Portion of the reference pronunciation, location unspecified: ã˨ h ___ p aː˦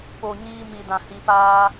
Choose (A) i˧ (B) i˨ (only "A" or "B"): A